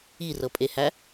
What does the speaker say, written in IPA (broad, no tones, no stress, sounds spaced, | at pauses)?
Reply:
i r ɤ pʼ e h æ